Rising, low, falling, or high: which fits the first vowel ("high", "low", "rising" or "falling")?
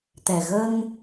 low